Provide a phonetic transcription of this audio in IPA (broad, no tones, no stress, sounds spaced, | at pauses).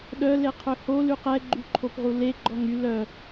ɗ œ l e qʰ ø h o l y q ɛ ɡ͡ǃ y ǃʰ o p ʁ u l e ɡ͡ǃ ɔ ŋ y l œ